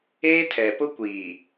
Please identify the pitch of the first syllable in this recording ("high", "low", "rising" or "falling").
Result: high